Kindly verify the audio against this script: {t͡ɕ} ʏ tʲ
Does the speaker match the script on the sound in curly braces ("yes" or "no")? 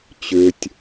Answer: yes